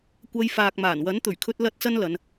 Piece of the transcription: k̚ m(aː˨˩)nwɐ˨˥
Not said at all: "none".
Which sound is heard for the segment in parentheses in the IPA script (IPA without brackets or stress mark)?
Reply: aː˨˩